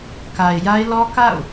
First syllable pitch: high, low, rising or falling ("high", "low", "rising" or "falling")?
low